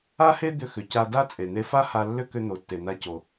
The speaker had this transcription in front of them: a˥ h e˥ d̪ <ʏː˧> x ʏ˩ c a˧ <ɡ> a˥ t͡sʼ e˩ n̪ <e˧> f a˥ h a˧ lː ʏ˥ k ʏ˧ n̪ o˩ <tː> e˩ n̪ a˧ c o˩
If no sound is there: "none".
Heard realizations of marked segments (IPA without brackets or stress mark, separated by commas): ʏ˧, d, e˧, tː